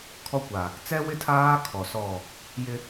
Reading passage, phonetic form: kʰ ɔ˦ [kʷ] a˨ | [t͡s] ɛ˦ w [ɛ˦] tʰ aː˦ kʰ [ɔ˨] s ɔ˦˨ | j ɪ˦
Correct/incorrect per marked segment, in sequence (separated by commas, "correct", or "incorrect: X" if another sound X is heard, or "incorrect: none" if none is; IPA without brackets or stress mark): correct, correct, incorrect: ɪ˦, correct